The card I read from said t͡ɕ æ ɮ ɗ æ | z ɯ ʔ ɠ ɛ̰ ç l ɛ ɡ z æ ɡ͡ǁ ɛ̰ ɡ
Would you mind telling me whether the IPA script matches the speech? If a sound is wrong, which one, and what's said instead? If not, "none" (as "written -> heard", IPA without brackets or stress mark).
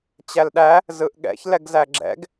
ɮ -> l